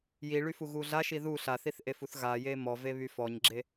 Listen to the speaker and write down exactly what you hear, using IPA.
j i ɭ y f u ɣ u ɮ a ʃ i ð u ɬ a θ i θ ʔ e f u θ ɣ a j e m ɔ v e β y f ɔ ɲ ɡ͡ǁ e

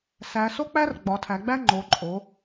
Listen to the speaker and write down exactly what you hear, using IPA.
s æ˩˧ s o˦ k͡p æ˦ r ɡ͡b ɒ˩˧ tʰ æ˩˧ ɡ͡b æ˦ ŋ͡ǃ o˩˧ ǃʼ o˩˧

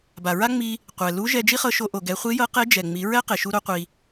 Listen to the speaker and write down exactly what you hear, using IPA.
b a˩ ɹ a˥ ŋ͡m i˧ | qʷ ɛ˩ l u˧˥ ʒ ɛ˧ d͡ʒ i˥ χ ɤ˧ ʃ o˧ ʔ o˩ ɡ ɛ˩˧ χʷ i˧˥ j ɤ˧˥ q e˧˥ d͡ʒ ɛ˩ ŋ͡m i˩˧ ɹ ɛ˥ q e˩ ʃ u˧ ɾ o˧ qʷ i˩

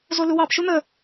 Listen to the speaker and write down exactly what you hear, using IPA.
z o l u w ɑ p ʃ u n̪ ə

